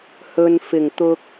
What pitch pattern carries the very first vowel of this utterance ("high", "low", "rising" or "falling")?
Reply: low